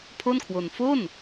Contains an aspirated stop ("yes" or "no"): yes